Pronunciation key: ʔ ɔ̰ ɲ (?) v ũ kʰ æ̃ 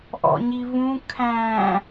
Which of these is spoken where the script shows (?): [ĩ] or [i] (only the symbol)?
i